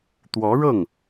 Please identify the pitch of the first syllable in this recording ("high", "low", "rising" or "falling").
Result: rising